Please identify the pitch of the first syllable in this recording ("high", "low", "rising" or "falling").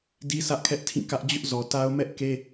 high